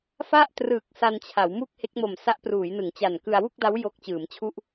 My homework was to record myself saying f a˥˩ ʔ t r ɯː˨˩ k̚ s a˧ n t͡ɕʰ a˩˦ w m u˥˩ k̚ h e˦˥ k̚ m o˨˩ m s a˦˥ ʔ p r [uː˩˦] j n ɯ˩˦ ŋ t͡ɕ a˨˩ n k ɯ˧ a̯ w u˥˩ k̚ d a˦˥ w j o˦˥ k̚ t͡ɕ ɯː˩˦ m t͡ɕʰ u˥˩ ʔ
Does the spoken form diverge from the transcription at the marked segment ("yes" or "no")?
no